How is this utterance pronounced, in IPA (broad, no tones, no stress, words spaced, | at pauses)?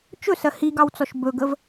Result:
t͡ʃɵsɜ hiɡɑwt͡sɔʃ bɵɡəv